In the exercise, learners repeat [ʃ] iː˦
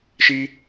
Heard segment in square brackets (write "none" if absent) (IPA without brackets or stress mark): ʃ